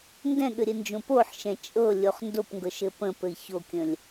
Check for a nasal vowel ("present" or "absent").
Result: present